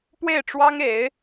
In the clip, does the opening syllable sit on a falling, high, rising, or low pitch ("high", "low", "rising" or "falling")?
falling